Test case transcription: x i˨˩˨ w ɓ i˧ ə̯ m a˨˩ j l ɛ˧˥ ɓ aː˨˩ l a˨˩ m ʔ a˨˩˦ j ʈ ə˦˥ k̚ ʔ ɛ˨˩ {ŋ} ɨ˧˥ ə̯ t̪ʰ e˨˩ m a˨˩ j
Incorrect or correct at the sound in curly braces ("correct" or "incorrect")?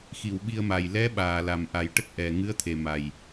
correct